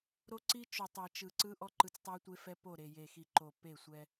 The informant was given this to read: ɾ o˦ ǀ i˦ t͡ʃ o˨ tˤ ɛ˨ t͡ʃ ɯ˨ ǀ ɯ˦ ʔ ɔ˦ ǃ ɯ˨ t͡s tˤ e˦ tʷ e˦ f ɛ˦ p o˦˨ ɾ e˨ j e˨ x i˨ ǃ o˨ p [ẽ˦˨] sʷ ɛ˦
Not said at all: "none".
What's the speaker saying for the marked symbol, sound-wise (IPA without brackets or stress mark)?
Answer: e˦˨